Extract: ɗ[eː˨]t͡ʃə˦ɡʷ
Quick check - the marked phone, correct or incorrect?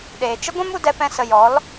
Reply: correct